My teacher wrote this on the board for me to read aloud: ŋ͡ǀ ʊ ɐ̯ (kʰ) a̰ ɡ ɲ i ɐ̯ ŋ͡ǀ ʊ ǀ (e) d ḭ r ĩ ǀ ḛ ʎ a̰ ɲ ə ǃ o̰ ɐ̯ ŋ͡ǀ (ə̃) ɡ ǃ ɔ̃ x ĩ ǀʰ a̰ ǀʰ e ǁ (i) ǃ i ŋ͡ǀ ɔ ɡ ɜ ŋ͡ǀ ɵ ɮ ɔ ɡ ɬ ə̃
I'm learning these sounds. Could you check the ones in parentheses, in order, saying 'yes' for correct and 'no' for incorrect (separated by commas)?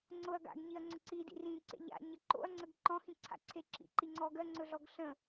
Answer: no, no, no, no